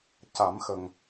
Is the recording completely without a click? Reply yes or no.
yes